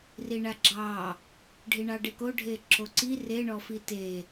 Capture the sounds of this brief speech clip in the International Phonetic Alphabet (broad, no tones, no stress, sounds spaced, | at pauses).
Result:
r i ɳ a ɡ͡ǁ ɑ | ɖʱ i ɳ ɑ ɖ e k o ɖʱ e ǁ o ǀ i r e ɳ ɔ f i t e